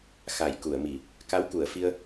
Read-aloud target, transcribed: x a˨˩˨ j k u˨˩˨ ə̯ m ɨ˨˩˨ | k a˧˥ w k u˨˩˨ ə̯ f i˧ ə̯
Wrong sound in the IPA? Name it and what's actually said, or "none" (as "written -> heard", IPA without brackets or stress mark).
ɨ˨˩˨ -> i˨˩˨